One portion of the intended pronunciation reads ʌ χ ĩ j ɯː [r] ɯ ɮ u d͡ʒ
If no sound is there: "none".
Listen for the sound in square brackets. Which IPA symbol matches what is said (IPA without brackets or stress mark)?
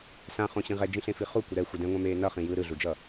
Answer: ɾ